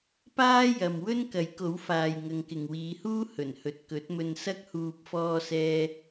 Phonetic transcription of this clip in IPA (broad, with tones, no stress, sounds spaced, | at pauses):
p aː˥ j ɐ˨ m w ɵ˥ n k ɐ˨˥ j k o˨˥ w f aː˨ j ŋ ɐ˨˧ ŋ k ɪ˨ ŋ w iː˨˧ h uː˥ h ɵ˨˩ n h ɵ˨ t̚ k ɵ˨˥ t̚ m ɵ˧ n s ɐ˥ k̚ h uː˧ p̚ f ɔː˥ s ɛː˥